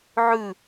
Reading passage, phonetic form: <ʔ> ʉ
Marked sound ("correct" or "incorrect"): incorrect